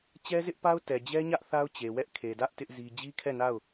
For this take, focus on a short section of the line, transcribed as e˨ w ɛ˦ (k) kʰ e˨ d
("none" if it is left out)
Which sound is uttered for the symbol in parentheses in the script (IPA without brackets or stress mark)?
ʔ